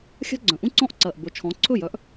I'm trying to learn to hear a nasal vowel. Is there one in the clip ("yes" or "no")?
yes